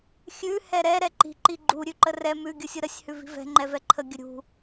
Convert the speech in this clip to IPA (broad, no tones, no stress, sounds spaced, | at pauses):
xʲ ʉ h ɛ ɾ ɛ ɾ ɛ ǃ i̤ ǃ i ɡ͡ǃ u ɾʲ ʉ ǃ ə r ɛ m ʉ ɡʲ ɯ sʲ ɯ ɾ ə sʲ h ʉ v i̤ v ɛ̤ ŋ͡ǃ ɛ v ɛ ǃʰ ə ɡʲ ə ɾʲ ṳ